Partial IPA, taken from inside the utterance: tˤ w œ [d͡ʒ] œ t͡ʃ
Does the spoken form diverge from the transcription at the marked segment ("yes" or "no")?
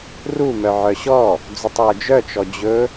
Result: no